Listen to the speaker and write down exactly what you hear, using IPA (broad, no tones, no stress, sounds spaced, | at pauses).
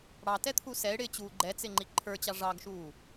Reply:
ɽ ɑ t ɛ t̪ʰ u s ɛ ɪ̯ ɽ ɪː t͡ɕ uː ɡ͡ǃ ɛ t͡s ɪ ŋ͡ǃ i ǃʰ ə˞ t͡ɕ ɑ ʐ ɑ ɡ ʃ uː